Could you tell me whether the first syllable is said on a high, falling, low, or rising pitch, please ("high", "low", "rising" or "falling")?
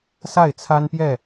falling